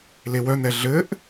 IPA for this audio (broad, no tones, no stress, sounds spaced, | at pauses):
l e w œ n̪ ɛ ɮ ɘ ʔ